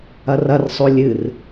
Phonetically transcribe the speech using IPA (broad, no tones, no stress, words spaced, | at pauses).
ɐrɐrsˤo lʲɨr